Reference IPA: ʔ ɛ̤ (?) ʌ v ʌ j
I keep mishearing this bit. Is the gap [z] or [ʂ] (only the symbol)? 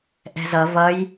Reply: z